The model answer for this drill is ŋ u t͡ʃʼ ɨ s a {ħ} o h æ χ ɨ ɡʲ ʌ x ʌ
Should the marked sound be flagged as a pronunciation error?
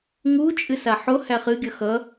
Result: no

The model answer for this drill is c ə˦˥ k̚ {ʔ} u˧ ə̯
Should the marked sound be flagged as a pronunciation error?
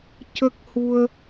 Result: yes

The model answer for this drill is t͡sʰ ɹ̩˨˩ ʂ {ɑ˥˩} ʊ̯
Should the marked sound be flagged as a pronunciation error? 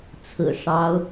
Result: yes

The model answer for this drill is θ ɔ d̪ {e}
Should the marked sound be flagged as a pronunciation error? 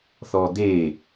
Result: no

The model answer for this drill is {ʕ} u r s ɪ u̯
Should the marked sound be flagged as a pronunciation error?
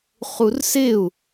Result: yes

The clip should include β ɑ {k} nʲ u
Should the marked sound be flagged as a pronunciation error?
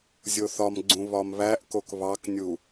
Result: no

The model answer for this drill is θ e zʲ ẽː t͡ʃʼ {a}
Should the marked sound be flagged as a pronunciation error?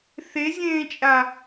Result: no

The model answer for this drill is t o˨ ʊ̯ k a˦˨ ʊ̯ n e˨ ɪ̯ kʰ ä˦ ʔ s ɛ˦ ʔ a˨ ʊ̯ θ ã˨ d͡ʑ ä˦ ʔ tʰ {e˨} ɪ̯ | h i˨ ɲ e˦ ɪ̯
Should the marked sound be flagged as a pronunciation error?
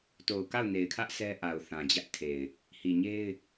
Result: no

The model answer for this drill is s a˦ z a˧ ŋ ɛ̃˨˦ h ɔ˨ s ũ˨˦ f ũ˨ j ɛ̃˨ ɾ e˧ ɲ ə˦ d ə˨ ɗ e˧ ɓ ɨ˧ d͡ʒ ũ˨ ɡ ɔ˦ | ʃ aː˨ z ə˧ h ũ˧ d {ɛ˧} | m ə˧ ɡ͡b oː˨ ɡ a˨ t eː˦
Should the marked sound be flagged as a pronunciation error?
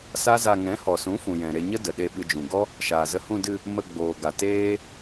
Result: yes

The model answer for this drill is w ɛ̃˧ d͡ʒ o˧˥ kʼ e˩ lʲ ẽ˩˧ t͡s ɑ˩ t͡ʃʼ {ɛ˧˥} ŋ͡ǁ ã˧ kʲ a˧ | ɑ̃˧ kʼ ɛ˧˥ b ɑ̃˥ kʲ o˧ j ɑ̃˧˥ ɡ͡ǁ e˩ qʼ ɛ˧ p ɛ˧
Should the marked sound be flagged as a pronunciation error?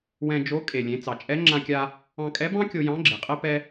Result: no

